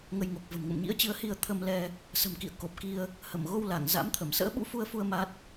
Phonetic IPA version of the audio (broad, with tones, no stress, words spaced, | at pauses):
ŋə˧jŋo˨˩k̚və̤˨˩m ŋə̰˧˨mɲḭ˧˥ə̯t͡ɕɨ˨˦ə̯hi˧ə̯ t̪ʰə˧m lɛ˧ | sə̤˨˩mkḭ˧˨ə̯ko˨˩p̚ ki˧ə̯ | hə˧˩mɣo˧wla˧˩ŋ za̰˧˥mt̪ʰə˧˩m sə̰ː˧˥ɓṵ˧˥fu˧ə̯fu˧ə̯ ma˦˥t̚